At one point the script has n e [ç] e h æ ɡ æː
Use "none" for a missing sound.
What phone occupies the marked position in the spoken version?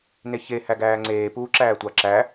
ç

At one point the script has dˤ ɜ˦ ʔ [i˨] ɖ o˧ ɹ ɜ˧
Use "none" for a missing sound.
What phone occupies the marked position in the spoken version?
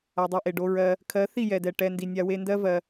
e˨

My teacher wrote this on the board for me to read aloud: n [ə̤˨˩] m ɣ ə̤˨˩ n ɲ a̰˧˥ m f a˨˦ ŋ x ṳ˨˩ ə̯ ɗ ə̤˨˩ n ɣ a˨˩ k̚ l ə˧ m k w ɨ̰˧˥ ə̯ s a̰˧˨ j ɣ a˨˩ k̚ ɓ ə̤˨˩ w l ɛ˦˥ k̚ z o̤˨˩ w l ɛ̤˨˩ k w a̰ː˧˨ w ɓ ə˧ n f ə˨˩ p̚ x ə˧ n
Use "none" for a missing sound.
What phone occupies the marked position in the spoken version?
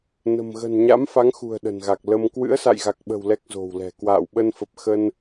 ə̤˨˩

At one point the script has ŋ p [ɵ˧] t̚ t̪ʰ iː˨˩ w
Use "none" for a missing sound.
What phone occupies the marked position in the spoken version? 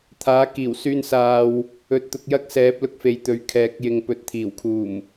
ɵ˨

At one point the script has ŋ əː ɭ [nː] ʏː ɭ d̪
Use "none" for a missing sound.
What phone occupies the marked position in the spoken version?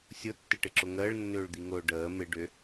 nː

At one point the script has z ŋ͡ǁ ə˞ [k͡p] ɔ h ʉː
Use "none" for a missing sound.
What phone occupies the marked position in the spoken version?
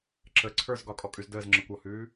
kʷ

